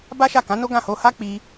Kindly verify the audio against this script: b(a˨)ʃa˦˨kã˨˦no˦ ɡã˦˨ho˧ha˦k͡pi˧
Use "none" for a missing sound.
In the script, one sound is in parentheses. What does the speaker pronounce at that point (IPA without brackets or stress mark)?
a˦